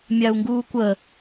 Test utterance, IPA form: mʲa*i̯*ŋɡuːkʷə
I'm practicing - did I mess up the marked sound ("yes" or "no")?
yes